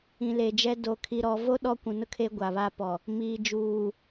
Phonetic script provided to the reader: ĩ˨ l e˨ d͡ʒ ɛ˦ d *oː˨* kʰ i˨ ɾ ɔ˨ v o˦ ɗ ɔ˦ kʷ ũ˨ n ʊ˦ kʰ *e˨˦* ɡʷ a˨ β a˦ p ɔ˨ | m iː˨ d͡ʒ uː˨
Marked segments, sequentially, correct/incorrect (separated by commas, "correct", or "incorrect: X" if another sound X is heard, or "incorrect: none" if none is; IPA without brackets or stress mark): incorrect: o˨, incorrect: e˦